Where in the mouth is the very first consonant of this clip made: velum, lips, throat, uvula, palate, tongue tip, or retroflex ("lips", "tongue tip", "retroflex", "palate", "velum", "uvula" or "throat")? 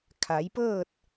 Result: velum